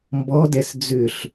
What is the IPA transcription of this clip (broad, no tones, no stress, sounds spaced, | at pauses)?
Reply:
m b ɔ d ɛ s d͡z ʏ ɬ